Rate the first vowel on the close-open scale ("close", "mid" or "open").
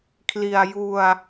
close